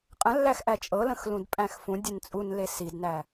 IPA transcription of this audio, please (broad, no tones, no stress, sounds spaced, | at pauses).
qʼ ə̃ lː æ x ʔ æ t͡ʃʼ ɤ l ə̃ x l ũ d pʼ æ̃ x f ũ dʲ e n t͡sʼ u n l e s i d n æ